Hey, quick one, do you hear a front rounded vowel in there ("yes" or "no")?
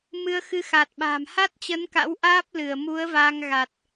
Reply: no